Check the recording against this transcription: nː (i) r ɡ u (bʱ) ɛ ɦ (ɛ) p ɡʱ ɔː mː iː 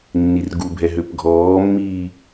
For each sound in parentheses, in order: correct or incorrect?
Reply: correct, correct, incorrect: ø

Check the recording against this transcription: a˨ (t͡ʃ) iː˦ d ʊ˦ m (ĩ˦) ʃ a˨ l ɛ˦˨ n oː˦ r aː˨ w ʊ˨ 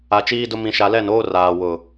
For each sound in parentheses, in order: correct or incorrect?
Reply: correct, incorrect: ĩ˨

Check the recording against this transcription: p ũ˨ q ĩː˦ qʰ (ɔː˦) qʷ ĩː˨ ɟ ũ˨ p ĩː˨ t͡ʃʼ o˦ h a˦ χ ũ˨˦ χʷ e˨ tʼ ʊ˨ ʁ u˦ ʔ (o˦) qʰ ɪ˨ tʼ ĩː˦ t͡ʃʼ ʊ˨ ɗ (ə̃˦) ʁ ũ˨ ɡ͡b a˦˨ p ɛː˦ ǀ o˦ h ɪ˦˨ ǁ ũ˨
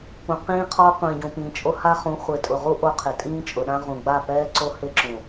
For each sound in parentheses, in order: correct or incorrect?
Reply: correct, correct, incorrect: ã˦

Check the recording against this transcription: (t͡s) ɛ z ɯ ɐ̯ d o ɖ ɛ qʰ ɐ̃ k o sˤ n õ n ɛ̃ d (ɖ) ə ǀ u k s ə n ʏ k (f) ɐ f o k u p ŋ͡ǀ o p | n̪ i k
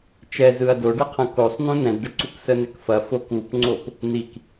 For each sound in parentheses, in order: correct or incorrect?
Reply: incorrect: t͡ʃ, correct, correct

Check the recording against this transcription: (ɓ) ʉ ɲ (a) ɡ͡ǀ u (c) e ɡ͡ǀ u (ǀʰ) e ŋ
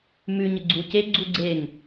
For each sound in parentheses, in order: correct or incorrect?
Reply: incorrect: m, incorrect: ə, correct, incorrect: ɡ͡ǀ

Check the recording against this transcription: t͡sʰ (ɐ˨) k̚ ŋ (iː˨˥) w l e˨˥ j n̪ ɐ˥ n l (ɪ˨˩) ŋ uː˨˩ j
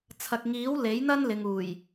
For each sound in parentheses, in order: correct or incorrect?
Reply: correct, correct, incorrect: ɪ˨

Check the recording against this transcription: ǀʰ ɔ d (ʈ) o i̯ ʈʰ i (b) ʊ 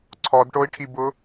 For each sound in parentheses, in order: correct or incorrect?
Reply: correct, correct

